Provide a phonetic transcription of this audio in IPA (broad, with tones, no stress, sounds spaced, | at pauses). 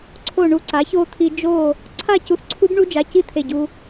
ǀʰ o˧˩ ɳ u˧˩ ǀ a˩˥ ç o˦˥ t̪ʰ i˧ d͡ʒ o˥˨ | ǀʰ a˥˨ c u˧ θ ǀʰ u˦˥ b ɳ u˦˥ d͡ʒ a˩˧˩ c i˥˨ t̪ʰ e˧˩ ɟ u˧